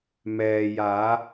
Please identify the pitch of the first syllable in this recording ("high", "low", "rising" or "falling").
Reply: low